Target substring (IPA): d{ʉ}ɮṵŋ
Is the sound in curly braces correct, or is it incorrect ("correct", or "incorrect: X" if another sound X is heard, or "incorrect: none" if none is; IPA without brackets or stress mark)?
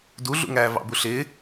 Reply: incorrect: u